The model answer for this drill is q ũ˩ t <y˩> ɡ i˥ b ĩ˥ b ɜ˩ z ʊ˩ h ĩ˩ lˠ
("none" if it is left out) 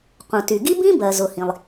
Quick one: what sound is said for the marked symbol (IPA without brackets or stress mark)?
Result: y˩